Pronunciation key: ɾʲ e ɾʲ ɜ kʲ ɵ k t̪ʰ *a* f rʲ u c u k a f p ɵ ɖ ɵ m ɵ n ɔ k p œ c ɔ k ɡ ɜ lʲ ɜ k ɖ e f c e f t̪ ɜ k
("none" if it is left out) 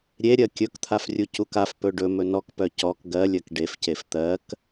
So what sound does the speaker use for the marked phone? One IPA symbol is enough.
a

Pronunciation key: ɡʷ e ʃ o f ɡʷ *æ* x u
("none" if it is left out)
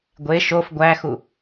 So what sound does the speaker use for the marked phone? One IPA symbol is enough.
æ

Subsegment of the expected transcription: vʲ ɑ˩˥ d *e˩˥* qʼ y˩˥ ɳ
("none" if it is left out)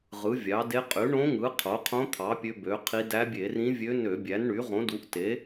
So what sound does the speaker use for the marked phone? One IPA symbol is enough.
e˧˥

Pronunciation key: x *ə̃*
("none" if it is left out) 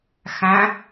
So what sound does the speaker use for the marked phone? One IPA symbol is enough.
æ̃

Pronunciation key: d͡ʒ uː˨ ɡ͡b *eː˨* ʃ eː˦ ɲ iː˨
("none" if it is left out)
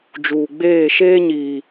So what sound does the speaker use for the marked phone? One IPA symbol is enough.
eː˦˨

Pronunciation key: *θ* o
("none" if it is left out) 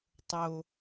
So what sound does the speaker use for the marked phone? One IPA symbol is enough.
tˤ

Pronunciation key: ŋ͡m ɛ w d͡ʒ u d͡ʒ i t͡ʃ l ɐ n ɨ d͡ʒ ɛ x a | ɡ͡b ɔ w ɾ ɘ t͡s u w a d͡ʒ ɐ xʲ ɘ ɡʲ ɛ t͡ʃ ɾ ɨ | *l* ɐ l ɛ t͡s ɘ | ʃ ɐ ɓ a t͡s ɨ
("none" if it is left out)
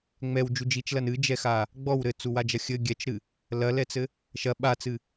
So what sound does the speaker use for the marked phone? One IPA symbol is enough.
l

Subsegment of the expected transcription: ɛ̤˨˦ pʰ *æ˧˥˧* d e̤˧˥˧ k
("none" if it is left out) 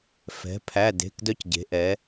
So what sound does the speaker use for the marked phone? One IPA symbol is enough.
æ˧˥˧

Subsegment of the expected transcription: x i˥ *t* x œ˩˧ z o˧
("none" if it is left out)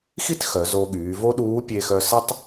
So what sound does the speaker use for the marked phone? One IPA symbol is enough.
t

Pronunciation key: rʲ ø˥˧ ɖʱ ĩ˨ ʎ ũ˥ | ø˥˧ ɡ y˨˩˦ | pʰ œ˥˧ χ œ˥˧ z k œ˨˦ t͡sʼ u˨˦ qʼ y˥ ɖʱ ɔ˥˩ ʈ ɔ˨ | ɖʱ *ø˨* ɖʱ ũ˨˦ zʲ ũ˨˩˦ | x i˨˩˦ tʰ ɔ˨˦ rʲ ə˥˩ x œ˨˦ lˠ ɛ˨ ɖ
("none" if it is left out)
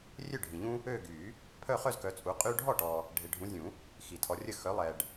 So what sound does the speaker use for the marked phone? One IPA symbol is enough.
e˨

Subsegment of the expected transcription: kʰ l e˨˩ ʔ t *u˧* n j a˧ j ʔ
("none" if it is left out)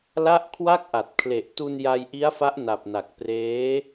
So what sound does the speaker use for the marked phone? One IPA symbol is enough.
u˧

